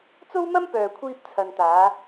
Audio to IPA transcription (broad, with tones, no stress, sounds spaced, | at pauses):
t͡s o˥ w m ɐ˥ m p œː˨ kʷʰ iː˧ p̚ t͡sʰ ɐ˨ n t̪ aː˨˧